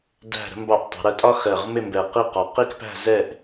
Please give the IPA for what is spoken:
dæ̤˧˩ɾə̤˧mbɑ˧˩ʔtˤə̤˩˧ ɾɜ˧tʼɒ˥xɜ˧˩ʁ mɪ˥˧mbɛ˧˩ qi˥˧qɒ˧ qi˥˧kpæ̤˥˧zɛ˥˧ʔ

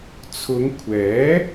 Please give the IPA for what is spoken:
t͡sʰʊ˨˧ŋkʷʰɛː˨˥

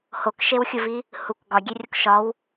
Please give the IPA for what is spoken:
hokʃewxʲuvi | huk ɡɒɡʲerʲok ʃɒw

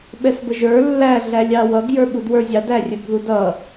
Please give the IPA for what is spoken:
ɓɛsbəʒə˞ lːæ ɮælʲɑwʌɡ jə˞ɓudwə˞zʲɑ dærʲəɡ ðudʌ

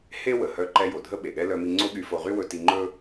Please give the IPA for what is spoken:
he˥ wə˩hœ˧ǃɛ˧ jo˩dʱə˥ɓe˩ɠɛ˥ lœ˧mi˧ ŋ͡ǀo˥ɠy˧fo˧ʁy˥ wɵ˧ti˧ŋ͡ǃɵ˥

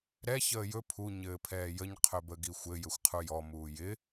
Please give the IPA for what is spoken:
ɾɛ çəːjɵ pʰu ɲɘːpʰɛːjəɲ qʰɵbəɡixʷɘ jɘxʷqʰujɔ muːjɪ

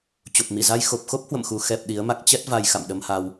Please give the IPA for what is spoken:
t͡ɕo˨˩p̚mi˧˩za˧j xo˨˩p̚xo˦˥p̚hwə̰˧˨mxu˨˩ xɛ˨˩p̚ ɗi˨˦ə̯ma˦˥k̚ t͡ɕɛ˦˥t̚va˧j xa̰˧˨mɗə˧mha˧w

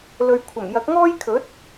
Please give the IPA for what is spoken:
lɵ˨ɥkʷʰɐ˨˩m jɐ˨˥k̚ŋɔː˥jkʰɵ˨˥t̚

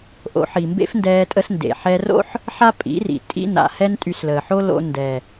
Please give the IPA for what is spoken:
ʔo̰˨˦ħi˨mbḛ˦fndɛː˧ tʼə˧sndḛ˨ħɛ˧ro̰˦ħ | ħa˦pʼḭ˨˦rḭ˨ tʼḭ˦na̰˨ hɛ˦ntʼy˧sləː˨ħo˦ lo̰˧ ndɛ˨

